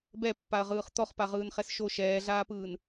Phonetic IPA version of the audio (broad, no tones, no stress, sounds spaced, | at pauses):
b ɛ pː a ɐ̯ ʁ ɯː χ t̪ ɔ χ p a ʁ ɯː n χ ɛ s ʃ o ʃ ɛː ɮ aː p ɯː n